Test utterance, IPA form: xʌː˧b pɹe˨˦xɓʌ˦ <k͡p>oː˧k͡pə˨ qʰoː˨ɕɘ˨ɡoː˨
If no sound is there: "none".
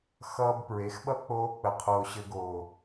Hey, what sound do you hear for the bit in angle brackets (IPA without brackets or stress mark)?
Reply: k͡p